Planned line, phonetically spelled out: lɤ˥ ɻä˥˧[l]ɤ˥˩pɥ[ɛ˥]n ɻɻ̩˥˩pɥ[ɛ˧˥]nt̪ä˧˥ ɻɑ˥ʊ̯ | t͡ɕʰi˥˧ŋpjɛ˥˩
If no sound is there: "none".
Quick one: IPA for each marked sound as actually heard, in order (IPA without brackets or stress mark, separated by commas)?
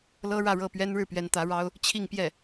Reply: ɻ, ɛ˥, ɛ˧˥